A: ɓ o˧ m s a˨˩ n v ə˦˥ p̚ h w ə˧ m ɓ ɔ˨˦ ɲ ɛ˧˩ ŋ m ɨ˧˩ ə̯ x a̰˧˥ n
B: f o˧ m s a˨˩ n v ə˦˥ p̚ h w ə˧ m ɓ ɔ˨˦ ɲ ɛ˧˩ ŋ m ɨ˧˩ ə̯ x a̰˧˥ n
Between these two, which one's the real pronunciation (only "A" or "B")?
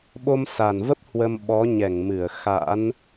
A